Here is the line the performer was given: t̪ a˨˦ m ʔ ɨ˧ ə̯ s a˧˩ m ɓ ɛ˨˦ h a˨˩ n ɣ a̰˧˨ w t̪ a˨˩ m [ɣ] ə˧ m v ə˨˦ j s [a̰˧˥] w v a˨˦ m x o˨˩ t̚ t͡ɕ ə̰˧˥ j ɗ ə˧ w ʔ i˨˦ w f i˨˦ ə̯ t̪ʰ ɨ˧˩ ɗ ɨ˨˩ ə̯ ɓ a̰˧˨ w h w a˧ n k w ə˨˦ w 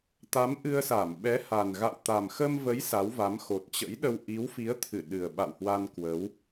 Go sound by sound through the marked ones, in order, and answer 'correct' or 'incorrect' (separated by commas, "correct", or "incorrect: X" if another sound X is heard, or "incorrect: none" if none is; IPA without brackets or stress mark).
incorrect: x, incorrect: a˨˦